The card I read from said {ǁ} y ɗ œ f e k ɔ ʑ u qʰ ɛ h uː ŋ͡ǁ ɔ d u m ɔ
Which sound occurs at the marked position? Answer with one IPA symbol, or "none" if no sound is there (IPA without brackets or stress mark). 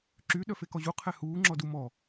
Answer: ǁ